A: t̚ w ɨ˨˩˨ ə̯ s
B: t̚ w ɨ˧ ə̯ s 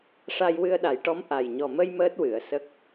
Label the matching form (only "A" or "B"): A